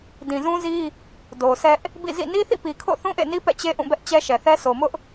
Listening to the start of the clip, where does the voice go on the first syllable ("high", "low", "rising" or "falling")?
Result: low